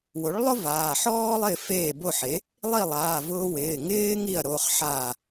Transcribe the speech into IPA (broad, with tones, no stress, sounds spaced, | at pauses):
w o˩˥ ɭ lˠ ʊ˥ v aː˩˧˩ ħ ɔː˥ lˠ ɪː˥˩ f eː˥˩ b o˥˩ ħ e˩˥ | lˠ i˥˩ lˠ aː˩˧˩ v ʊː˧ w ɪː˩˧˩ ŋ ɪː˥ ŋ i˥˩ ɐ̯ ɾ o˩˧˩ χ ħ a˧˩